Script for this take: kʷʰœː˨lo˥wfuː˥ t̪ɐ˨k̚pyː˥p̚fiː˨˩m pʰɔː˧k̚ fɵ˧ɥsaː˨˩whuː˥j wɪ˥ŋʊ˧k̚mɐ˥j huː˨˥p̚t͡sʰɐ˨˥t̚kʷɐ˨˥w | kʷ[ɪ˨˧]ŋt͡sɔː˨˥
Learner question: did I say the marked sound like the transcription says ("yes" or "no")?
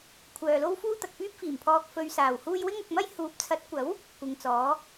yes